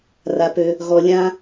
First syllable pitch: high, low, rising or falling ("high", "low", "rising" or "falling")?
low